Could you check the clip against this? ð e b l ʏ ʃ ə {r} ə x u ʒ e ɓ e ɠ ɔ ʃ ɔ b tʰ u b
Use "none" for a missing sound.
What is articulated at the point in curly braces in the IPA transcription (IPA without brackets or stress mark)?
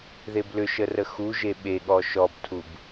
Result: r